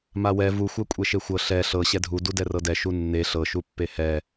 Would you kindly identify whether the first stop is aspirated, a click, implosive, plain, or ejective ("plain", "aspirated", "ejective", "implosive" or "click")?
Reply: ejective